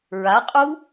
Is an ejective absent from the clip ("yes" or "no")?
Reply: no